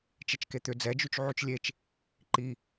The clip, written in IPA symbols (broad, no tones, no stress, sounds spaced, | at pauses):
t͡ʃ e t͡ʃ k e t̪ ʏ d͡z ɛ d͡ʒ y t͡ʃ ʕ y t͡ʃ lʲ e t͡ʃ | ǃ i